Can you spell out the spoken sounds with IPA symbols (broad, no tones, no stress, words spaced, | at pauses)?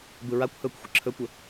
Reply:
bɯɹakʷhɵːkʷ xʷəǁʰɵkʷə